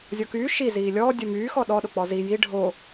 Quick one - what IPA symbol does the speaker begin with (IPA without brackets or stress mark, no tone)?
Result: zʲ